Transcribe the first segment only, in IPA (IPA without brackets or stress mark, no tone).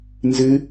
n